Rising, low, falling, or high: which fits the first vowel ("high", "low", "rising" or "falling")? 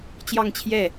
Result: falling